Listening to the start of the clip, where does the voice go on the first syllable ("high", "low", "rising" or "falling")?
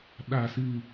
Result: falling